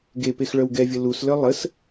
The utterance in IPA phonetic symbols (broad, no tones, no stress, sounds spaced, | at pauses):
ɡ e p e x ɭ œ w ɡ ɛ vʲ ə l u s l œ lˠ ə s